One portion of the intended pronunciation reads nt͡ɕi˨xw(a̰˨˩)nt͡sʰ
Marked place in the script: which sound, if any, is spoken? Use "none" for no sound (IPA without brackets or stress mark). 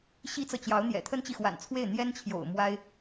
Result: a̰˨˩